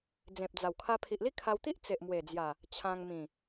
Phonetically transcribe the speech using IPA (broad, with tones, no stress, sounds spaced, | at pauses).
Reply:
d͡z ẽ˨ p̚ d͡z a˨˩ w kʰ a˧ pʰ i˨ ʔ l i˥˧ kʰ a˧ w t̪ i˦ ʔ t͡s e˨ ʔ m w e˨˩ d͡z j a˨˩ | t͡ɕʰ ã˧ ŋ m ĩ˨˩